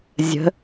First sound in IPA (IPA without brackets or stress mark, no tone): zʲ